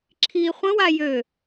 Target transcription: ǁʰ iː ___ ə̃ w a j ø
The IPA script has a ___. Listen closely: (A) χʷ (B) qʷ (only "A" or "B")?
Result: A